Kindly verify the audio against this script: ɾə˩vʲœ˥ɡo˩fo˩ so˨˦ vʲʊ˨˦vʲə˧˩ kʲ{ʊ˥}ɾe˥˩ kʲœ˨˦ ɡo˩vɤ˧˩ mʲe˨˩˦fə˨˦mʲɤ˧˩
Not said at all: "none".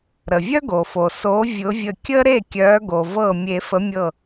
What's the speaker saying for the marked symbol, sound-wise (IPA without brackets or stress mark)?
ə˥